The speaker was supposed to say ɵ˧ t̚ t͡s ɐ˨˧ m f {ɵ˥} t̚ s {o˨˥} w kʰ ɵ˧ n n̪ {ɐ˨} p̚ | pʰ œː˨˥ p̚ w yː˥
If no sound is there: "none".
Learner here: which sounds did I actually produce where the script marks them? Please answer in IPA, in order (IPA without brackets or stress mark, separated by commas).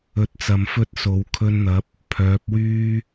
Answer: ɵ˥, o˨˥, ɐ˨˥